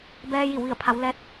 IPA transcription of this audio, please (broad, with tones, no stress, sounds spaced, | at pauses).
b ɛː˧ j i˧˩ w ʋ i˧˩ ə̯ pʰ a˩˧ w l ɛː˧˥ t̚